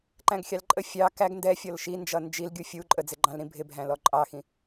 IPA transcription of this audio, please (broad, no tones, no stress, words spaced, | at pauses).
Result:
ǃæ̃ɡxʲɑlǃʼə fʲɑ kæɡ ndɛfʲɔl ʃind͡ʒʌ nd͡ʒilɡʲu fʲu ǃʼəd͡zɪɡ͡ǃɑ̃lɾĩ bʱɪbʱæ̃lɔ ǃʼɑxĩ